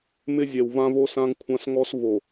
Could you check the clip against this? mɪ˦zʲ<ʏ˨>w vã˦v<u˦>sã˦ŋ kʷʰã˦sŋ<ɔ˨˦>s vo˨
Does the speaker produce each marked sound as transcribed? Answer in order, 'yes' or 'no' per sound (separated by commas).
no, no, no